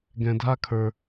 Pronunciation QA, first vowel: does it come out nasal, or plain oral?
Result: nasal